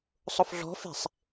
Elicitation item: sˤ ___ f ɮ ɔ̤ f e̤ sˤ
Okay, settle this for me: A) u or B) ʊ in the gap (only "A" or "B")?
B